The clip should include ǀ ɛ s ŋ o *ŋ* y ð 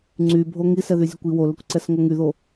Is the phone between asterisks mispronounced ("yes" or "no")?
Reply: no